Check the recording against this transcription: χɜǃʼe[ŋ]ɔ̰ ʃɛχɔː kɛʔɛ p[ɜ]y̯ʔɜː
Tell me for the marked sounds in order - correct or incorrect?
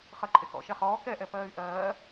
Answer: incorrect: k, incorrect: ɜː

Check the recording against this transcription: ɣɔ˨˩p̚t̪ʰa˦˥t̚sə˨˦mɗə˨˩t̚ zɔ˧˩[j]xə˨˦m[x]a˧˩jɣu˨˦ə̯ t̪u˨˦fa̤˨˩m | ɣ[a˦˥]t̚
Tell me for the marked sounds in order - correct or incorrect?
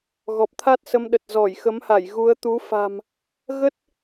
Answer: correct, incorrect: h, incorrect: ə˦˥

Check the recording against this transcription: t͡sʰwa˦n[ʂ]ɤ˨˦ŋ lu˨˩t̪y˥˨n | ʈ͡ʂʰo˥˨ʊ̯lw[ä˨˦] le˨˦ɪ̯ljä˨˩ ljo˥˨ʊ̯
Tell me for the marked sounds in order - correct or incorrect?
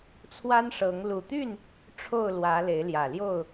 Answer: correct, correct

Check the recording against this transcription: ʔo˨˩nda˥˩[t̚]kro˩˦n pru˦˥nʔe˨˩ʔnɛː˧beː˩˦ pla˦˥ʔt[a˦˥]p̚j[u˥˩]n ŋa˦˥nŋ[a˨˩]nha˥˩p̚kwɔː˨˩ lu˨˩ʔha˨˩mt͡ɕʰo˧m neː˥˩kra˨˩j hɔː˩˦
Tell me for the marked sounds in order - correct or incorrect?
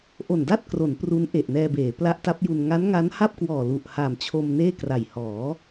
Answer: correct, correct, incorrect: u˧, incorrect: a˦˥

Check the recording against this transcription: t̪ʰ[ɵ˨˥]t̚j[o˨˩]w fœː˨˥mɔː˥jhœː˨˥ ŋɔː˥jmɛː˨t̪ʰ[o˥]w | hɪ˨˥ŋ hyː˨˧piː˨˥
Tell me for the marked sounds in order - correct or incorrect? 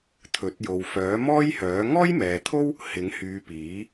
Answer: correct, incorrect: o˨, correct

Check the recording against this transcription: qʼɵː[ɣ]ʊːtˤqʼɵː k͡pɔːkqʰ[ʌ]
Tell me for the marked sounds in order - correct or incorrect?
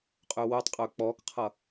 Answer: incorrect: w, correct

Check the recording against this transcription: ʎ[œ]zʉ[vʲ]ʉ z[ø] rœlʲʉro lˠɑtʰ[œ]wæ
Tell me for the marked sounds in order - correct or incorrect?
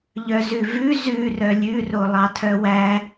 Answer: correct, incorrect: v, incorrect: ʉ, correct

